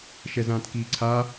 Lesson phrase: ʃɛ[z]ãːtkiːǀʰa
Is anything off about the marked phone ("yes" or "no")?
no